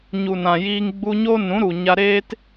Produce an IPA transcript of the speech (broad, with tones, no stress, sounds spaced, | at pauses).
ɲ u˨ n ã˨ j iː˧ ŋ ɡ͡b u˧ ɲ o˦ n ũ˨˦ ɾ u˨ ɲ a˧ ɾ eː˦ t